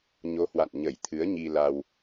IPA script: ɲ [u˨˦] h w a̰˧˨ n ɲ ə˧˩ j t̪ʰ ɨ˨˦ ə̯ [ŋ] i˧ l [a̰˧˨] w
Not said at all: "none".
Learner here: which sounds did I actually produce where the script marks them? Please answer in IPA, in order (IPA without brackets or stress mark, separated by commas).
o˨˦, ɲ, a˧